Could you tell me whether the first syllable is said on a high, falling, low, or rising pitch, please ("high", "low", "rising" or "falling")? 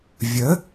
rising